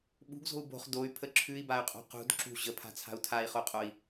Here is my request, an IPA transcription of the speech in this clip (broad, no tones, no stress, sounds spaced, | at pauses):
ɓ ṳ ɡ z o̤ u̯ b o̤ χ d o y̯ pʰ ə ǁʰ ʉ i̯ b a y̯ qʼ o̤ q ṳ d ǁ ṳ ʑ ə pʰ a̤ t͡sʰ a̤ u̯ tʰ a i̯ χ o qʼ o i̯